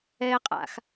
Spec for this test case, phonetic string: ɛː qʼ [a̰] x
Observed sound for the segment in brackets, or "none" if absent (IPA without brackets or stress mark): a̰